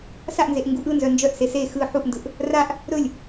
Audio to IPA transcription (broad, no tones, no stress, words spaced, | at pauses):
saʔnzeʔ ŋɡuʔɯnzœ nd͡ʒœʔse se xɯ ħuʔndɯʔ | raʔ | ɾɵlʲ